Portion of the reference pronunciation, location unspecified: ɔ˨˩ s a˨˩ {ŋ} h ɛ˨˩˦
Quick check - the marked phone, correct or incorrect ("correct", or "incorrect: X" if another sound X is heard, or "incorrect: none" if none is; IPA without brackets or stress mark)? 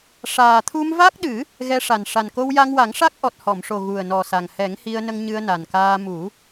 correct